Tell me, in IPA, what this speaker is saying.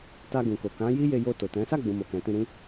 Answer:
t a˧ ɡ ũ˨ k o˨ k ã˨˦ j i˦ j e˧ j o˧ t o˨ t ɛ̃˨˦ s a˦˨ ɡ͡b ũ˨ m o˨ k ɛ̃˨ t ĩ˧ ɾ ĩ˦

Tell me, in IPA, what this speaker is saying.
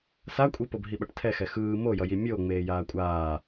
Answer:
s a kʷʼ i p o b ɦ i ɓ ʌ ʈ tʰ ɛ x ɛ x ɯː m o j ʌ j i mʲ o ŋ͡m eː j aː kʷʼ aː

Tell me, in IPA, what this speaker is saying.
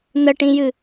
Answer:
n̪ ə ʈ ĩ j ɨ

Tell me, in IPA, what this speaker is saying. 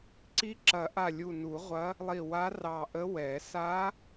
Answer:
ǀ i˧˥ ǁ ɐ˨˩˦ ʔ a˧˩ lʲ u˧˩ n u˨˩˦ ʁʷ ɐ˧˥ | lˠ i˧˩ w a˧˥ r ɑ˧˩ ʔ ə˧˥ w ɛ˨˩˦ s a˧˥

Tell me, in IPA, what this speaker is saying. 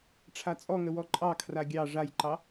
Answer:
ʈ͡ʂʰ a t͡sʼ ɔ ŋ ə w ɔ ǃʼ ɑ kʰ r a ɡʲ ɑ ʐ a j ǃ ɑ

